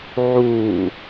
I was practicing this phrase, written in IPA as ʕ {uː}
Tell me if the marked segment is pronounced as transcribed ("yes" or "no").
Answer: yes